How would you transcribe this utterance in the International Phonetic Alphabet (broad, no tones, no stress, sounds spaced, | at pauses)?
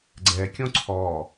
ɡ͡ǀ ɛ kʲ õ ǀʰ ɔ